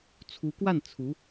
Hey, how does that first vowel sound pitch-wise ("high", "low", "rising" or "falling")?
rising